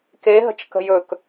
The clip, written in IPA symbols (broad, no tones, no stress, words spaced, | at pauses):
keɦə̤t͡ʃ kə̤jɵk